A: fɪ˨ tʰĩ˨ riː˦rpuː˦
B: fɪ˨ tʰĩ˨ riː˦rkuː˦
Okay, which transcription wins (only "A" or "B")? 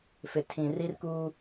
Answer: B